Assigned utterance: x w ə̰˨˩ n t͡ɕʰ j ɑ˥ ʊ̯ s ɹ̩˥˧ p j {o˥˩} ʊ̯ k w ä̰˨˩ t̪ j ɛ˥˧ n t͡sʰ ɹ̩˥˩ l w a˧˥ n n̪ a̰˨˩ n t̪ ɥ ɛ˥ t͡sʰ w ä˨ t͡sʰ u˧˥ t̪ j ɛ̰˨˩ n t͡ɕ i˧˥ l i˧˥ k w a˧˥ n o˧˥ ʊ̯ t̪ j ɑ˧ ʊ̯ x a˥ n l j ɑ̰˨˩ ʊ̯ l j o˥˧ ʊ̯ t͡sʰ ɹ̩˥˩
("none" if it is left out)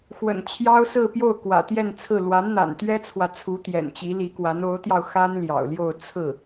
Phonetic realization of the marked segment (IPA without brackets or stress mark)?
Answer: o˥˩